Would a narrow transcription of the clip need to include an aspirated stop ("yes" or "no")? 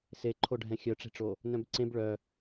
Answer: yes